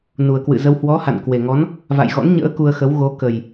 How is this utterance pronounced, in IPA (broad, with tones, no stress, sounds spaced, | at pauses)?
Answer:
n u˨˩ ə̯ k w ɨ̰˧˨ z ə˧ w h w ɔ˨˦ h a̰˧˨ n k w e˨˩ ŋ ɔ˨˦ n | v a̰˧˨ j ɣ ɔ̰˧˥ n ɲ ə̰ː˧˥ k u˧ ə̯ x ə˨˦ w ɣ o˨˦ k ə˨˩ j